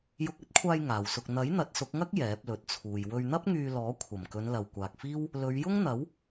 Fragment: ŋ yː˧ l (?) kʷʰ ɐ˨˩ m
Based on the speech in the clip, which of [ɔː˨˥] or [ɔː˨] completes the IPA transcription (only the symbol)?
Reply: ɔː˨˥